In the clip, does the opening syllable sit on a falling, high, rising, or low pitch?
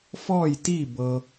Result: falling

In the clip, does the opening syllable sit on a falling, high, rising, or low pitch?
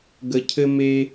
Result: low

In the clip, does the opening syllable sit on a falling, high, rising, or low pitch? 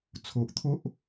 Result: low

